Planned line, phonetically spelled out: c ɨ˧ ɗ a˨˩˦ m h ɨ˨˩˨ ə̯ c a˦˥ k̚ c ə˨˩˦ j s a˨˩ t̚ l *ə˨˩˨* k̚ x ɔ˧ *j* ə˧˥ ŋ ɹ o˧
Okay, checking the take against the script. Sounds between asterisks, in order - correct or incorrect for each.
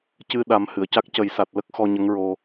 incorrect: ə˦˥, incorrect: ɲ

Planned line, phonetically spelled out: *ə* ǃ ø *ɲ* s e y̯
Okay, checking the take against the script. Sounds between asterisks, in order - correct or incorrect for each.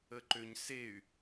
correct, correct

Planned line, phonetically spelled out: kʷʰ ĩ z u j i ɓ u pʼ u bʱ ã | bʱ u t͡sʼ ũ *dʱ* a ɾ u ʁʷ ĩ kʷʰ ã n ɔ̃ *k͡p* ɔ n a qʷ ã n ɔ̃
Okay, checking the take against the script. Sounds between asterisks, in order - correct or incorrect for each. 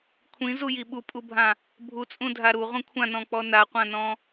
correct, correct

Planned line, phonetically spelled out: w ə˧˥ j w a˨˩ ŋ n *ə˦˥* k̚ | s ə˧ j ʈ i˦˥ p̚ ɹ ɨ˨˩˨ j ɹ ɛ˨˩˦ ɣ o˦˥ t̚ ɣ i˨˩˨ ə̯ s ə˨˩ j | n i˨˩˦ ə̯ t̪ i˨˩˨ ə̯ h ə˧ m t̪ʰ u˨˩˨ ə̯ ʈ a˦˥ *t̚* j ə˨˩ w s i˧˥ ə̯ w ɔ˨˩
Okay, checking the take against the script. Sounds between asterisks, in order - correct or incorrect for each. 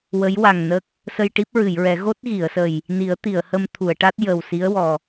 correct, correct

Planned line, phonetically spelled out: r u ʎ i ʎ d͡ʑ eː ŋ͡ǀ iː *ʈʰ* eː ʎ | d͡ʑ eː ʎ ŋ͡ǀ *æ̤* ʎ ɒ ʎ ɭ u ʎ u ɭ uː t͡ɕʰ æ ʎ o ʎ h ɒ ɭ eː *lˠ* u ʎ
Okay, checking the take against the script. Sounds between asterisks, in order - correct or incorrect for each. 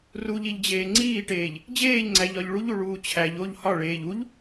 incorrect: ʈ, incorrect: æ, incorrect: ʎ

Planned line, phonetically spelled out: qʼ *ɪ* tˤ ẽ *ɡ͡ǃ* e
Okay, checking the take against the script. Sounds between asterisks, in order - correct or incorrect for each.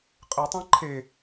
correct, incorrect: ǃʰ

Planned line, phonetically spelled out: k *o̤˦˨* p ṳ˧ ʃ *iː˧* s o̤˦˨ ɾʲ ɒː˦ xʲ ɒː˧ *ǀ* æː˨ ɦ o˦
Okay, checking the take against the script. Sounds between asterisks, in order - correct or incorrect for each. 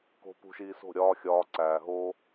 incorrect: o̤˧, correct, correct

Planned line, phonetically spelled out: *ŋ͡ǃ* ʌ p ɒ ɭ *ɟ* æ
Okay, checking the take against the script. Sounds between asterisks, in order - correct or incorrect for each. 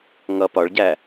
incorrect: ŋ, correct

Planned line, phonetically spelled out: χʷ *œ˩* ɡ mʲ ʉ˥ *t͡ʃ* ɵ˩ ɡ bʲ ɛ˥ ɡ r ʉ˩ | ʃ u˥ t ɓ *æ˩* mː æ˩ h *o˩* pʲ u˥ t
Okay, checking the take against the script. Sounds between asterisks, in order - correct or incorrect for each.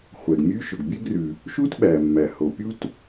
incorrect: ɛ˩, incorrect: ʃ, correct, correct

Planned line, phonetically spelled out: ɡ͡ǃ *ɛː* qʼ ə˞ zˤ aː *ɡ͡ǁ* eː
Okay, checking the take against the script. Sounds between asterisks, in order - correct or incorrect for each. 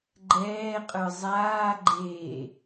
correct, incorrect: ɡ͡ǃ

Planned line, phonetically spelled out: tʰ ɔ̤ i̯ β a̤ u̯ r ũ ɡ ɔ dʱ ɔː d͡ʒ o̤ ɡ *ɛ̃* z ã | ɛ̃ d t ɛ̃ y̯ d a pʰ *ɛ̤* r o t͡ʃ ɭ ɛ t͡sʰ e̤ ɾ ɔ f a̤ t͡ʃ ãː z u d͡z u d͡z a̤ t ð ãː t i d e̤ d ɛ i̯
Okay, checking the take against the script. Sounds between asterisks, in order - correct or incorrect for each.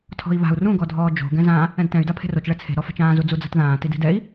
correct, incorrect: e̤

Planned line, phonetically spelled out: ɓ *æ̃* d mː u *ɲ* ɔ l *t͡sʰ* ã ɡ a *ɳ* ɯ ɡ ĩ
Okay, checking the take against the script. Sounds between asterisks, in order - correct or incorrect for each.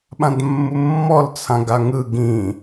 incorrect: ã, incorrect: mː, correct, incorrect: ŋ

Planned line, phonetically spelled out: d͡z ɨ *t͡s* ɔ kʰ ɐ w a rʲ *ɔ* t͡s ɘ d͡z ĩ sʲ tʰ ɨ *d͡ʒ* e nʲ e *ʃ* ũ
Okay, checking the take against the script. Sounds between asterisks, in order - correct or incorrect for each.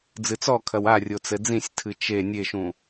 correct, incorrect: o, incorrect: t͡ʃ, correct

